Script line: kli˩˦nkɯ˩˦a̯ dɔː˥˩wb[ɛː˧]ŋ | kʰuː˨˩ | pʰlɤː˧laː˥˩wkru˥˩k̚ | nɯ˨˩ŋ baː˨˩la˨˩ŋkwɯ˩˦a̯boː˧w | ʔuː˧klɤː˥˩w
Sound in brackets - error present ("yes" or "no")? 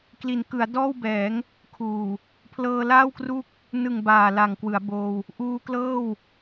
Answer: yes